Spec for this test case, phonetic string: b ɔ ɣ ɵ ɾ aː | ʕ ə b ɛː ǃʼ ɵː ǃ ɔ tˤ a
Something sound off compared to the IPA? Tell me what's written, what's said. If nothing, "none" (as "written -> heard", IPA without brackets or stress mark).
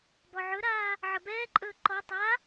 ɣ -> ʕ